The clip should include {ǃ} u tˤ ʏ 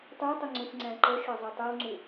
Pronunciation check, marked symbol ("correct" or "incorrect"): incorrect